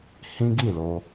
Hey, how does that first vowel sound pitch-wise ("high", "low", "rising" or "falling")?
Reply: high